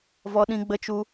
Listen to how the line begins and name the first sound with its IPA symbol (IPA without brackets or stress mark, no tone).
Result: v